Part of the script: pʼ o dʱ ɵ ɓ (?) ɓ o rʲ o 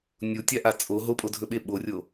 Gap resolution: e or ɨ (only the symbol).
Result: e